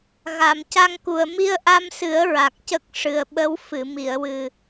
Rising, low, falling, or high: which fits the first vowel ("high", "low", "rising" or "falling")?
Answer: low